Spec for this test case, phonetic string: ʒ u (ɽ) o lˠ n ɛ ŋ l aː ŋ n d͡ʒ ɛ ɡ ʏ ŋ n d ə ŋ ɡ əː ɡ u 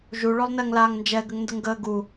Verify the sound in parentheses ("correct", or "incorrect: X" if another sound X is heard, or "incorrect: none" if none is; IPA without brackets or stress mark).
incorrect: ɭ